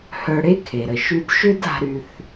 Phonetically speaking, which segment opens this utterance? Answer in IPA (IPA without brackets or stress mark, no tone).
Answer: h